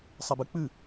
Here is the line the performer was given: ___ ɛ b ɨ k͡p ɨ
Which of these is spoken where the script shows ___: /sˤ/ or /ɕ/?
sˤ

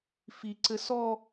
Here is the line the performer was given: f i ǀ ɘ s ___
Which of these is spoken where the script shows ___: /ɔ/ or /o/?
ɔ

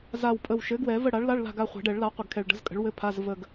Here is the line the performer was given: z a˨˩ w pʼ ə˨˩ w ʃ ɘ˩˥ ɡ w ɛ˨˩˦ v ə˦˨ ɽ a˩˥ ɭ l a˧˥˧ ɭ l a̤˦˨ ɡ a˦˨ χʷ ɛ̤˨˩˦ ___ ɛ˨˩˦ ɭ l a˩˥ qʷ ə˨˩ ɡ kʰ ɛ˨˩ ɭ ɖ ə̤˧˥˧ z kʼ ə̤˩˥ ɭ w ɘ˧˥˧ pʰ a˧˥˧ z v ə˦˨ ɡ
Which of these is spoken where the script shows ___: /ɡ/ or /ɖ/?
ɖ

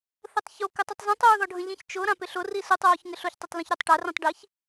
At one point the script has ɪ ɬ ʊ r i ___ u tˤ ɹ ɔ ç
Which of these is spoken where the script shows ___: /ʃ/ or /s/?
s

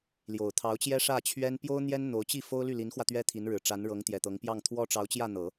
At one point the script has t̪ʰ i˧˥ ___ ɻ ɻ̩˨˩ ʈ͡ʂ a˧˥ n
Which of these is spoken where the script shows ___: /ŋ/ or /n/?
n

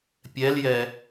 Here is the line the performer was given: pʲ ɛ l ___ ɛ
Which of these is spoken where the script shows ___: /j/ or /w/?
j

